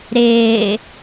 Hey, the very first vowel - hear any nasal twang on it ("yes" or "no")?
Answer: no